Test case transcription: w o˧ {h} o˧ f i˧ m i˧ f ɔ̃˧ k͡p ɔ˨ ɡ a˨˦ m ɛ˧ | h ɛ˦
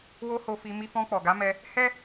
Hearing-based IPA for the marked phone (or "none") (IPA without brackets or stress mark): h